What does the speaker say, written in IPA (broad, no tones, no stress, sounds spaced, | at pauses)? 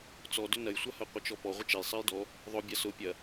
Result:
t͡s ɔ d ʏ n ɐ j sʷ a h ɐ qʷ ə t͡ʃ ɔ p ɔ ʁʷ ə t͡ʃ ɛ j sˤ ɛ j d ɔ | ðˤ ʊ bʲ a s ʊ pʲ ɐ